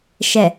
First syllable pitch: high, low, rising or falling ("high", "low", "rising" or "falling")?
low